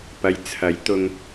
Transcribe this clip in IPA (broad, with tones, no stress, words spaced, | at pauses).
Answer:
pɐ˨jt͡sʰɐ˨˥jt̪ʊ˧ŋ